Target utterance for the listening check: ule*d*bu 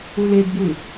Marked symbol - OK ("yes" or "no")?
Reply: yes